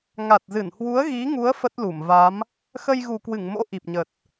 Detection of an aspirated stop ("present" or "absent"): absent